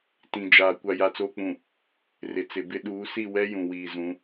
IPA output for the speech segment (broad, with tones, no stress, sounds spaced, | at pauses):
t ĩ˨ d͡ʒ aː˨ kʷ a˨ j a˨ t͡s oː˨ k͡p ũ˨ | r ɪ˨ t͡s ɪ˨ b ɪ˦ ɗ uː˨˦ s i˦˨ w ɛ˦ j ũ˨ w iː˨ z ũ˨˦